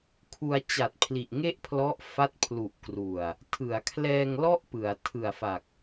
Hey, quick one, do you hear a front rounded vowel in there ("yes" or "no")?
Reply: no